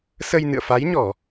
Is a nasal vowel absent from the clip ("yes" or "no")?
yes